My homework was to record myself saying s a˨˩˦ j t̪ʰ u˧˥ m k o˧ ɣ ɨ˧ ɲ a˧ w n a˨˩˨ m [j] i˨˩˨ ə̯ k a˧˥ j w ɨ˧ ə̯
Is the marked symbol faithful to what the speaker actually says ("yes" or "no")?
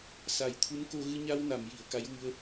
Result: yes